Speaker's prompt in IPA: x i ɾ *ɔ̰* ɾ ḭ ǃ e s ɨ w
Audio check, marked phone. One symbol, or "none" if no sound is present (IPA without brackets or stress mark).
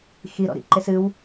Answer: ɔ̰